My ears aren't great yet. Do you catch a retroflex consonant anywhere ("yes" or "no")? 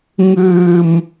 no